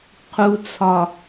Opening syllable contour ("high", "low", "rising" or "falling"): low